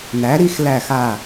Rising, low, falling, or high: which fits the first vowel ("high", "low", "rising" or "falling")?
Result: rising